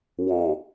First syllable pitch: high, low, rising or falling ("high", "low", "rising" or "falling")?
low